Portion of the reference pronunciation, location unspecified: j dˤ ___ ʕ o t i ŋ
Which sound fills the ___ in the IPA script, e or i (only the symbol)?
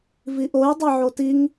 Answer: e